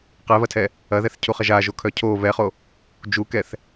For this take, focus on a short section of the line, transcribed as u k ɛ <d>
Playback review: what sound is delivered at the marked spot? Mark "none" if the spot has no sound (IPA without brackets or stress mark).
θ